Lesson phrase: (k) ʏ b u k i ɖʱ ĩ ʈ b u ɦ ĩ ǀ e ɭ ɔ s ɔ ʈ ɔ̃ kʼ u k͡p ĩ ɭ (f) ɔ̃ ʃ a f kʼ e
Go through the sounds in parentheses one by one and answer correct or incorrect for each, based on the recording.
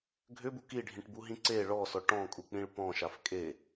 incorrect, incorrect

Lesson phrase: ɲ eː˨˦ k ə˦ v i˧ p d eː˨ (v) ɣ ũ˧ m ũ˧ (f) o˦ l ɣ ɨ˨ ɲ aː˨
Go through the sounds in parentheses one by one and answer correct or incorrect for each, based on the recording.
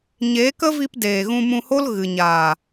incorrect, incorrect

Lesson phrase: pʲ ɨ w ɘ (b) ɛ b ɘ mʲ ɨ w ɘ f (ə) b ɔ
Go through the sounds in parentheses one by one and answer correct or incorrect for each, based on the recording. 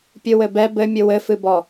correct, incorrect

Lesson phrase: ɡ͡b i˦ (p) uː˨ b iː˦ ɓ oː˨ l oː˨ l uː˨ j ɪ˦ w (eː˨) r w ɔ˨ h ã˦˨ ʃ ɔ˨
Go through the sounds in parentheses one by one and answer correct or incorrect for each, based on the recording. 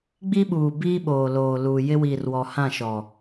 incorrect, incorrect

